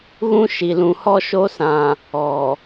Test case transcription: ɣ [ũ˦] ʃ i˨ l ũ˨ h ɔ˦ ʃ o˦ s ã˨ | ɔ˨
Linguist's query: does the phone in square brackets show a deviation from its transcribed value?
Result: no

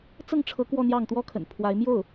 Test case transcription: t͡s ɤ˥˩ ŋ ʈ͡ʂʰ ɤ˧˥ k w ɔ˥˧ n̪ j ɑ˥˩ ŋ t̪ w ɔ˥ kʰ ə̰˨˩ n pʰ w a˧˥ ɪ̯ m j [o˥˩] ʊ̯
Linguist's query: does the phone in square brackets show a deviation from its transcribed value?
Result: no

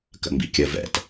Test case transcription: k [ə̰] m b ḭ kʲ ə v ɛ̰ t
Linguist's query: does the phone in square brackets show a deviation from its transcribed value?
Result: no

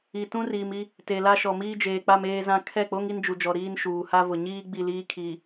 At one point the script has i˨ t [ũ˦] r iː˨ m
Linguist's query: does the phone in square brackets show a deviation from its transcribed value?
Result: no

